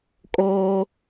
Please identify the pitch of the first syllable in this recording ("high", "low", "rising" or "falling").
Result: high